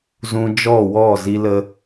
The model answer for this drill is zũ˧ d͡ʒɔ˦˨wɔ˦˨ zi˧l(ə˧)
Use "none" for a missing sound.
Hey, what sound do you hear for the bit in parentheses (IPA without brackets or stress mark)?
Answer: ə˧